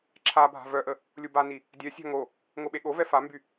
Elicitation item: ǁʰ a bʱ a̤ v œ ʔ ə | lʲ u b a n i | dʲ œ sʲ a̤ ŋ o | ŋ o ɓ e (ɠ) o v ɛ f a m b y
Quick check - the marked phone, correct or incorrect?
correct